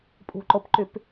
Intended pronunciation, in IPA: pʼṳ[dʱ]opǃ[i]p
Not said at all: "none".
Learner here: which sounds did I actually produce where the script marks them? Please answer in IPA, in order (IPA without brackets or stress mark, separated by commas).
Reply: ǃ, y